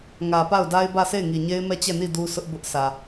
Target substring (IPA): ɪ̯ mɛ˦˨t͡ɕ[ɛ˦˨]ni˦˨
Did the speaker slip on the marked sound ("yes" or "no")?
no